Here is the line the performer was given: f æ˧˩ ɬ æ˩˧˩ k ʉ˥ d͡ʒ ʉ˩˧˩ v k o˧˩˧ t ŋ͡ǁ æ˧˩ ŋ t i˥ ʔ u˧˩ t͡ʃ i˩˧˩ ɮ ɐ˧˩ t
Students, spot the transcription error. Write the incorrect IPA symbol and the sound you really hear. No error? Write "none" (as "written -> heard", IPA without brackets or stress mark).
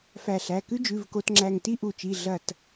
none